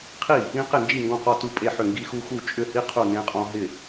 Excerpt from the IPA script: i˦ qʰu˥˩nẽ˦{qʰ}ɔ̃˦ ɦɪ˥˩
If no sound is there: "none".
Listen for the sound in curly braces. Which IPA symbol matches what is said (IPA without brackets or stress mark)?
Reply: qʼ